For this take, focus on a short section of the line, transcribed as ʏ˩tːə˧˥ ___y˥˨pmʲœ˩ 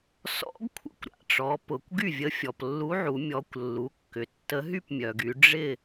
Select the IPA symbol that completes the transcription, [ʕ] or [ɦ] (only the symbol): ɦ